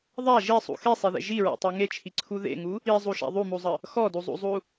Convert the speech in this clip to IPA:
ðˤ a ʒ i sˤ ṵ x e sˤ e ð ḛ ʒ i ɹ a̰ tˤ u ŋ e t͡ʃʰ i ǀʰ u ð ḛ ŋ u | i zˤ u ʃ a̰ ðˤ u m u zˤ ə | x ɔ d u zˤ ṵ zˤ u

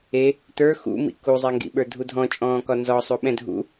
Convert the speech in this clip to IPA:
e | t ə˞ x ṵ m ḭ k u zˤ ɛ ŋ ɡ ḭ ɓ ə˞ dʱ u dʱ ɔ̃ t͡ʃʼ ɔ̃ː k ɒ n z ɔ sˤ u ɓ ɛ̃ dʱ ṵ

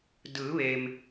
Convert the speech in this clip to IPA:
d ɯː˩˧ ʋ e˩ m

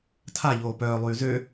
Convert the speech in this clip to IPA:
tʰ a ʎ oː p œː lˠ yː z ø

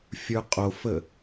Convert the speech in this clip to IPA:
fʲ ə˞ qʼ o f ə

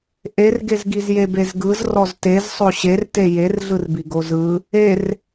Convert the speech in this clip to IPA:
ʔ e r ɡ e z ɡ i z j e b e z ɡ ɯ z r ɔ z t e z sˤ o ɕ e r t e j e r ɮ ɯ r b i ɡ o z ɯ | e r

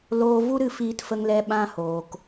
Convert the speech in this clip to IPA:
l oː˧ v u˦ ɾ ɨ˧ f iː˨ t f ə˨ ŋ l ɛ˨ ɓ ã˧ h oː˨ k

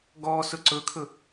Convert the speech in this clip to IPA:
ɡ ɔ s ɵ ǀ ɵ kʰ ɵ

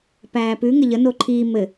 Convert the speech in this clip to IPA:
p æː p ʉ ŋ ɘ ʎ ə n o ǃʰ iː m ɘ

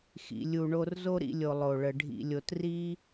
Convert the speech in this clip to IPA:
x ḭ˨ lʲ u˨ ɳ o˧ r z o˦ ɾ ḭ˧ lʲ o˨ lˠ o˨ ɭ ə˨ ɖʱ ḭ˨ lʲ o˨ t r i˦

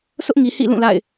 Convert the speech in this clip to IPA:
s ʊ˦ ʔ ŋ i˨ h ḭ˦˨ l ũ˦˨ l a̰˦˨ ɪ̯

